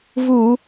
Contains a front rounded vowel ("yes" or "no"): no